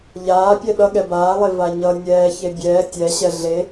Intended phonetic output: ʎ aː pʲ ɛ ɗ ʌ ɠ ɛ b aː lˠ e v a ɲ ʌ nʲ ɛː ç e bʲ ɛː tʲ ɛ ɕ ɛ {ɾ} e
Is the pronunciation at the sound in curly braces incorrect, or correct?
incorrect